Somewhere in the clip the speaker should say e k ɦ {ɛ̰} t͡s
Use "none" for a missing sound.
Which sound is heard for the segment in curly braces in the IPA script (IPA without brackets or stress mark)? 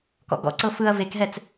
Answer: ɛ